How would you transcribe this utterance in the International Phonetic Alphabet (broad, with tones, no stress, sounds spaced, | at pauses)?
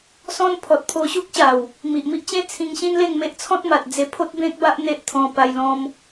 s ɔ̃˦ n pʰ ɔ˨ t̚ pʰ o˧ ɕ u˦ k̚ ɕ a˨˩ w | m i˨ ʔ m i˦ ʔ t͡ɕ ẽ˦ t͡sʰ ĩ˧ ŋ ɕ ĩ˦ n l e˥˧ ŋ m e˦ ʔ t͡sʰ ɔ̃˦ t̚ m a˨ t̚ d͡z e˧ pʰ o˦ t̚ b ẽ˦ k̚ b a˦ ʔ n̪ e˦ ʔ t̪ʰ ɔ̃˧ p a˧ j l ɔ̃˧ m